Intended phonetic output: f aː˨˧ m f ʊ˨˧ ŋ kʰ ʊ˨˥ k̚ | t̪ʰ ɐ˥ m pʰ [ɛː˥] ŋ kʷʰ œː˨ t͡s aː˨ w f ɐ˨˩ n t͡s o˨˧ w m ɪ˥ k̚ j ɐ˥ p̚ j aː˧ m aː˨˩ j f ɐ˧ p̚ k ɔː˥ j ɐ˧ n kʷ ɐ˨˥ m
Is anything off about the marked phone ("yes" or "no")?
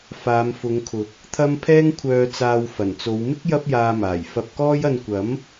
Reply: no